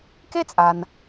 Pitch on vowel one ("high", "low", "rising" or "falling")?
high